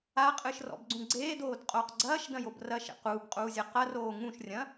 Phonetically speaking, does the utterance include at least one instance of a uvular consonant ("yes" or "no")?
yes